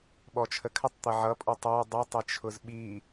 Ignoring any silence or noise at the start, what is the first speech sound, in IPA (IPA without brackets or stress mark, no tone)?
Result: ɓ